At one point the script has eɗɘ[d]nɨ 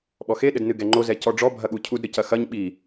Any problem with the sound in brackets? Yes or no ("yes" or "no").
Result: no